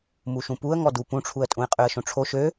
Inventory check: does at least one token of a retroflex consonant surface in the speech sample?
yes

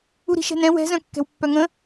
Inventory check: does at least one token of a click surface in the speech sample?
no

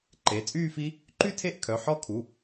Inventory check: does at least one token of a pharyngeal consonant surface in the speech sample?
yes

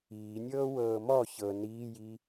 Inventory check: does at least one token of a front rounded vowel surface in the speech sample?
no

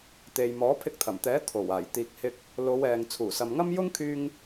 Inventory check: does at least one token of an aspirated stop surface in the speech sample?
yes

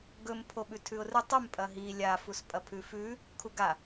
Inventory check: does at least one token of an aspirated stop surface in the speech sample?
yes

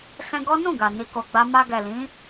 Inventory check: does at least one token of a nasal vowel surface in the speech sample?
yes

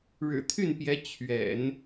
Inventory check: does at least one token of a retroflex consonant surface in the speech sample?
yes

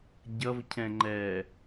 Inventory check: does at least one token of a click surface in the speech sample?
yes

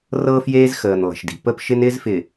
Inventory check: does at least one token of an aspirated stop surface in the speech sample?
no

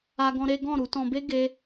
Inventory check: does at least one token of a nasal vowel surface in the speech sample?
yes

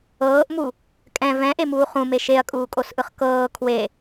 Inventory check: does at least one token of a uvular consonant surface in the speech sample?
yes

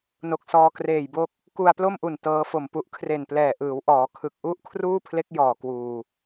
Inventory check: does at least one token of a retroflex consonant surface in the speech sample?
no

